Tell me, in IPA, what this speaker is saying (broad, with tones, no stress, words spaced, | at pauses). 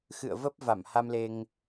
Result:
xɨ̰˧˨ə̯və˦˥p̚ va˧˩mha˧mle˧ŋ